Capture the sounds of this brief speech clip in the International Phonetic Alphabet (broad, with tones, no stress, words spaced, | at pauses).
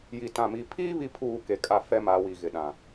ji˨tã˨ mi˨pʰiː˦ βi˦pʰuː˦˨ke˨kʼa˦˨ fɛ˦ma˨˦wi˨ ɣɪ˨ɗã˨